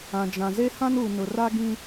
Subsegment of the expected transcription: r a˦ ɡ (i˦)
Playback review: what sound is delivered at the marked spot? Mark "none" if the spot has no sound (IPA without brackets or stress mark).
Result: ĩ˦